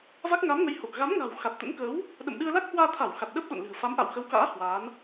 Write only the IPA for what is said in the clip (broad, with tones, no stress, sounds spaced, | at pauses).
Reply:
v a˦˥ k̚ ŋ a˨˦ m ŋ ə˨˦ j h o˨˩ k̚ ɣ a˨˦ m ŋ a̤˨˩ w x a˨˩ t̚ t̪ ə̰˧˥ n k əː˨˦ w | ɗ ə̰˧˨ m ɗ ɨ˧ ə̯ l a˦˥ k̚ h w aː˧ t̪ʰ a˧˩ w x a˨˩ t̚ ɗ əː˦˥ p̚ ɗ o̰˧˨ n l ɨ̤˨˩ ə̯ f a˨˦ m ʔ a̰˧˨ w x ə˨˦ w k a̰ː˧˥ h w aː˨˦ n